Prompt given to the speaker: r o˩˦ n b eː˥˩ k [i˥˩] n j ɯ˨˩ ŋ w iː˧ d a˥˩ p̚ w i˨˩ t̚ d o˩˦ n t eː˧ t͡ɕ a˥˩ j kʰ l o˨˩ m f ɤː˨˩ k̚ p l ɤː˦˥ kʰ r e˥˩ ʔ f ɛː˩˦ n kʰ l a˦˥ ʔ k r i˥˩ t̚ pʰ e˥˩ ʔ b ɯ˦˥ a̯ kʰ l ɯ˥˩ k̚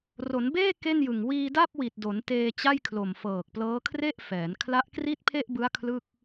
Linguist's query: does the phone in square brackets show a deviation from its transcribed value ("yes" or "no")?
yes